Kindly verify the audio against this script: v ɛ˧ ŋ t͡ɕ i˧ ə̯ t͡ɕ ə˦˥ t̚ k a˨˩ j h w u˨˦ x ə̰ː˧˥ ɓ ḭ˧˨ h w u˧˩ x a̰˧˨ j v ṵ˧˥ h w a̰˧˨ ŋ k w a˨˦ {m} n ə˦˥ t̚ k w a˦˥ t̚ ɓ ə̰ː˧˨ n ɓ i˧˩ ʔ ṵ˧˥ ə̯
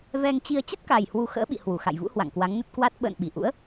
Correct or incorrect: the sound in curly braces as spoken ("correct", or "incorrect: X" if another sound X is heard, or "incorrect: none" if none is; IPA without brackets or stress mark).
incorrect: ŋ